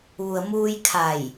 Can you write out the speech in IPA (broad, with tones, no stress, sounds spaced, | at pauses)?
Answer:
ʋ u˩ ə̯ m uː˧ j kʰ a˧˩ j